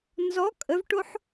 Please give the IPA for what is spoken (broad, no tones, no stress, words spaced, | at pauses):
nzɔ kʼəvʈoħ